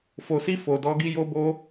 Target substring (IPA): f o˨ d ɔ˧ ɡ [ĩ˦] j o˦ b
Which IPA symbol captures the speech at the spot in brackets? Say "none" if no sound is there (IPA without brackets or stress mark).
i˦